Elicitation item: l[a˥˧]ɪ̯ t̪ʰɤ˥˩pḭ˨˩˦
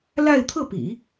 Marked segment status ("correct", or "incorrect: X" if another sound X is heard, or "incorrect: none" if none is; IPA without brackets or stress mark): correct